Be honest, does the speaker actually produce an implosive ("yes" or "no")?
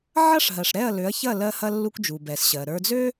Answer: no